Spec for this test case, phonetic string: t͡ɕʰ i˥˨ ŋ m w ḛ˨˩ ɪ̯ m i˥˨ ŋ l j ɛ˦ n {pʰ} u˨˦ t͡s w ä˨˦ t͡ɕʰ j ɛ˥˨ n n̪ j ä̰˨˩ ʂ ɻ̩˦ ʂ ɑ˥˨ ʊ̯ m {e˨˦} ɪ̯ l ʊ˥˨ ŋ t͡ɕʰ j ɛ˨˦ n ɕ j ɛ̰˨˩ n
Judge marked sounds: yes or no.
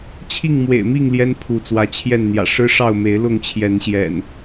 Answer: yes, yes

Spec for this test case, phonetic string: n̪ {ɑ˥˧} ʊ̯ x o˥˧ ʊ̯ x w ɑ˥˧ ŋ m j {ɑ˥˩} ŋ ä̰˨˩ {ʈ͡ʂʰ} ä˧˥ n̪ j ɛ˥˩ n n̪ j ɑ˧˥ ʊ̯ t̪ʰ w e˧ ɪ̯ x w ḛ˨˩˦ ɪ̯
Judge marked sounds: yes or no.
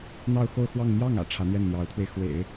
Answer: yes, yes, yes

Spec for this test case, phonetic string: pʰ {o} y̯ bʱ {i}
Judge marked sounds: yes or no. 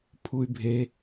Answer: no, no

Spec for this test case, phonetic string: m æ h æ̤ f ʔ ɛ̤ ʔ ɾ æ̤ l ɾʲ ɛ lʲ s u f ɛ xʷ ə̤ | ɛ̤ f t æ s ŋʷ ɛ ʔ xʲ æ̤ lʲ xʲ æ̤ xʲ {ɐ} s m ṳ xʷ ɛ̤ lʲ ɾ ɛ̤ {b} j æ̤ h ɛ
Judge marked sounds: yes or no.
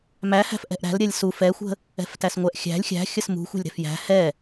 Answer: no, no

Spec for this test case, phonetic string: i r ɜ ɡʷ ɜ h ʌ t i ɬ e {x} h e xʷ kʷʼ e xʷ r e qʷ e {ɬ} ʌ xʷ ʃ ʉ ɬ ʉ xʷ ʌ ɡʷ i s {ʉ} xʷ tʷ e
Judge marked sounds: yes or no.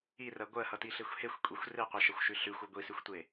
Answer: no, no, yes

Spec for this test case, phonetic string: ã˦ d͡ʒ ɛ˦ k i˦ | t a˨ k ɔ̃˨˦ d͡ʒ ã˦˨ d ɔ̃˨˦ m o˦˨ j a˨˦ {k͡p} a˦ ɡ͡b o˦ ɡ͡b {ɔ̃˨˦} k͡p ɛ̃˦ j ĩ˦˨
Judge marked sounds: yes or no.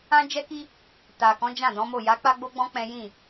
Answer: yes, no

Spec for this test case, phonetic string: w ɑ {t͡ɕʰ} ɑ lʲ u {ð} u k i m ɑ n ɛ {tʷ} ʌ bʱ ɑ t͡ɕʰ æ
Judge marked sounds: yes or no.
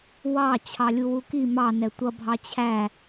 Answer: yes, no, yes

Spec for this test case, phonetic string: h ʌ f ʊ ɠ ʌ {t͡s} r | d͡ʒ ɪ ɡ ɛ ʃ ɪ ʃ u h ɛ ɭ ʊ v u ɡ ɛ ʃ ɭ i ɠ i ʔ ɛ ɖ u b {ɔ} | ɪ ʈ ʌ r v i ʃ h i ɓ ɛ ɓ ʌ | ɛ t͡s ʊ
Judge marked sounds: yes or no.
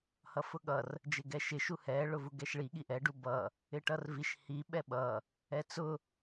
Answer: no, no

